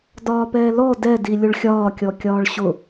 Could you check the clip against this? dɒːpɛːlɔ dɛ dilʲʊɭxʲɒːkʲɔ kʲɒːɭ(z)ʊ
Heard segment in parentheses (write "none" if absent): ɕ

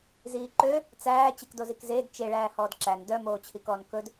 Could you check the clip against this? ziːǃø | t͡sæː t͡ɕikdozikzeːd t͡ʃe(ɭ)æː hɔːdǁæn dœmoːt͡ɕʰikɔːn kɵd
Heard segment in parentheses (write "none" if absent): ɭ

